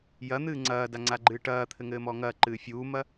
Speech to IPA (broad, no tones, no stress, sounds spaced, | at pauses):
j ɐ n̪ ɨː ŋ͡ǀ ɐː d a ŋ͡ǀ a ɡ͡ǃ ɨː ʈ ɐː t̪ʰ ɘ ŋ ɘː m ɔ ŋ ɐː ǃ ɨː fʲ uː m ɐ